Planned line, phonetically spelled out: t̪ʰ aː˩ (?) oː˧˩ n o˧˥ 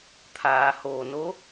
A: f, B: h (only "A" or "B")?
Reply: B